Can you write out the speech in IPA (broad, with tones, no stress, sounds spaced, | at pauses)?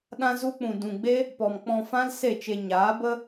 ɗ ã˦ z u˦ k͡p ũ˨ d ũ˨ ɡ͡b e˦ | p ɔ˨ m k͡p ɔ̃˧ f ã˦ l s e˦˨ t͡ʃ e˧ ɲ aː˨˦ b ə˦